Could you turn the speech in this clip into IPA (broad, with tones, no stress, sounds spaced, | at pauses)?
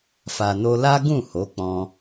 f a˨ n o˧ l a˦ ɡ ũ˦˨ h o˨˦ k͡p ɔ̃˧